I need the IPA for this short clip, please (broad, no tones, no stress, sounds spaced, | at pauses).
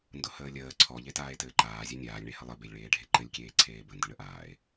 n d ʊ h əː lʲ əː ǀʰ ɔ ʎ e t aː e̯ t ɘː ǃ aː zʲ e nʲ aː lʲ ɳ e h ə lˠ ɘ b e lʲ ɭ eː ɖʱ e ǃ ɘ lʲ kʲ eː ǀʰ eː b ə n d ə ɳ ə ʔ aː e̯